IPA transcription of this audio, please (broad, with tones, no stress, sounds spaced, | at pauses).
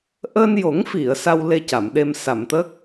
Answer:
ʔ əː˧ n j o˨˩˦ ŋ f i˨˩˨ ə̯ s a˧ w l e˧ c a˨˩˨ m ɗ e˧ m s a˨˩˨ m t̪ ə˦˥ k̚